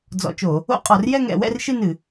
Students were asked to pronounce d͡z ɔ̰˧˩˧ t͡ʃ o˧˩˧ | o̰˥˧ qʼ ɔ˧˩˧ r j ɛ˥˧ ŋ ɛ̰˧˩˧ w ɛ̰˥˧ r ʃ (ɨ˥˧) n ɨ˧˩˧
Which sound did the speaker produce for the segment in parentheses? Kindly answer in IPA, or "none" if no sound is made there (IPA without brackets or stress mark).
ɨ˥˧